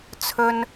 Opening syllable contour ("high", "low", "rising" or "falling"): high